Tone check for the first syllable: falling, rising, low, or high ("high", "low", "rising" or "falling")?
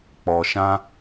low